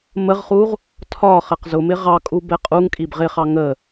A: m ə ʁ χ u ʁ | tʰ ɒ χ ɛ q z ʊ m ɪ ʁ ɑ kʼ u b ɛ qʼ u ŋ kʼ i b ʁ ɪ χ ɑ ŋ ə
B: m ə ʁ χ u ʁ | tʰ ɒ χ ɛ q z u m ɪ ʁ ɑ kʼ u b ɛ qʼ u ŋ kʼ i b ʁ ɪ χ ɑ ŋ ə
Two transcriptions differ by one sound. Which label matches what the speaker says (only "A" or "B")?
A